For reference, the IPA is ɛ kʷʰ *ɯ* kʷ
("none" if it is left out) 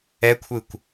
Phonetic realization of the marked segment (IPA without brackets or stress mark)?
ɯ